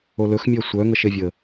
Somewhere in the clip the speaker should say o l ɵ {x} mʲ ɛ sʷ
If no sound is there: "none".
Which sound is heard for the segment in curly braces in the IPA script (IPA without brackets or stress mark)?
x